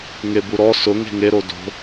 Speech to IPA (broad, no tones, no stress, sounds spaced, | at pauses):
ŋ e b u ɾ ɔ s ʊ ŋ e̤ ŋ e ɾ o d o̤